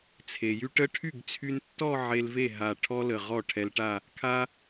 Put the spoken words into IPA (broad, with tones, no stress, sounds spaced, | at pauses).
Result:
t͡sʰ e˩ j y˧ ʈ ə˥˧ ʈʰ y˥˩ ɡ t͡sʰ y˧ n tː ɔ˥˧ ʕ e˧ l v e˥˩ ɦ a˧˩ ʈʰ ɔ˥ l ə˧˩ ʁ ɔ˥˩ ʈʰ ɛ˧ l ʈ a˥˧ | kʰ a˧